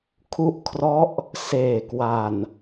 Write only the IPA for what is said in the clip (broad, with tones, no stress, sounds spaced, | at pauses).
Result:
kʰ u˦˥ ʔ kʰ r ɔ˦˥ ʔ | s eː˨˩ k w a˨˩ n